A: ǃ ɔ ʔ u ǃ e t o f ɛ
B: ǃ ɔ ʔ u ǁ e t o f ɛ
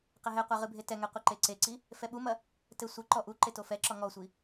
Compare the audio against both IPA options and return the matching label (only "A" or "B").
A